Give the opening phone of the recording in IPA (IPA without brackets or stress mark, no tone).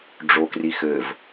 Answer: ɖ͡ʐ